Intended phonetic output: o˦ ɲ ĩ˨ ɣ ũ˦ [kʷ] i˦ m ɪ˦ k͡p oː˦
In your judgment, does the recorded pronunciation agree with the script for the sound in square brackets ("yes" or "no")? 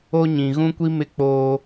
yes